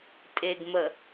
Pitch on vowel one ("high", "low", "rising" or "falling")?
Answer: low